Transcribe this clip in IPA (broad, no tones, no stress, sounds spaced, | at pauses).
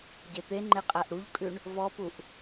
ɟ e t̪ e ŋ͡ǃ e qʼ æ ʔ ɾ u ʎ kʼ ʉ ɳ | v ɔ p u ʔ